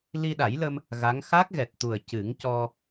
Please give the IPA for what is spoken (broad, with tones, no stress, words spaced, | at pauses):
li˧ɗa˨˩˦jlə˧m | ɣa˧˥ŋ xa˦˥k̚ɣɛ˨˩t̚t̪u˨˩ə̯ cɨ˨˩˦ŋcɔ˧